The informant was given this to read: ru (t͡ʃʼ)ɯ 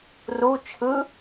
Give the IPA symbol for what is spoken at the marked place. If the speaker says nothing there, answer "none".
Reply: t͡ʃʰ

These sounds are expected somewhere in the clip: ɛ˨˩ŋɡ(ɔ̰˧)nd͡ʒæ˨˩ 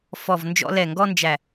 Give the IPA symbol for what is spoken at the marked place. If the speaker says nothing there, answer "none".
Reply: ɔ˧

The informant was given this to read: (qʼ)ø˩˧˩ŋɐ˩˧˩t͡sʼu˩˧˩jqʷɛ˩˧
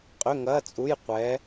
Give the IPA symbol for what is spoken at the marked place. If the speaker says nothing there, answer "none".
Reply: qʼ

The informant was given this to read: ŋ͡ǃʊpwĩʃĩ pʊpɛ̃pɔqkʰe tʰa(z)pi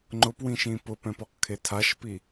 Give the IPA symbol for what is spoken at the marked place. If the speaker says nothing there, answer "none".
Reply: ʃ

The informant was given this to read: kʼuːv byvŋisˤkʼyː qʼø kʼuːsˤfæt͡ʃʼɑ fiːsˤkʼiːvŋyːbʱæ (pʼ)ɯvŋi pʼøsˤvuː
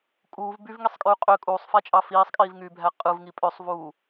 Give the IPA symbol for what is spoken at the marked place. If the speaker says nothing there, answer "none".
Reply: qʼ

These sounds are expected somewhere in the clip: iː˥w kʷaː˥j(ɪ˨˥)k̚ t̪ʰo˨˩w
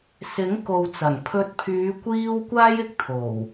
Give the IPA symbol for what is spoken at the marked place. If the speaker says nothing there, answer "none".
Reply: ɪ˨˥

